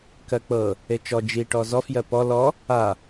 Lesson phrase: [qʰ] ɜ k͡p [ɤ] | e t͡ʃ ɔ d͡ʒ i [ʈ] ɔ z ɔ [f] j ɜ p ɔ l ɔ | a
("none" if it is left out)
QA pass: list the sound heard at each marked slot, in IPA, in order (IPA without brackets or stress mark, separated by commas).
k, ɤ, ʈ, f